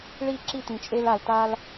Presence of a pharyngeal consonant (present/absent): absent